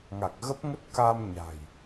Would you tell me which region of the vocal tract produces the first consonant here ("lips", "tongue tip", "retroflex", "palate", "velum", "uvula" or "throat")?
velum